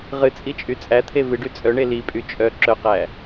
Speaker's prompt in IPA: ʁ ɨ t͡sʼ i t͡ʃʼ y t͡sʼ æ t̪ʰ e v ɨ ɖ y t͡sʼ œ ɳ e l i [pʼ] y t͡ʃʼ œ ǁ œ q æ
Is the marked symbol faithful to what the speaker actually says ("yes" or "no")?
yes